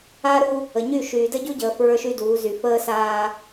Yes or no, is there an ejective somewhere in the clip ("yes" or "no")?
no